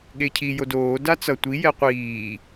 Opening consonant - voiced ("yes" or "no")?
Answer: yes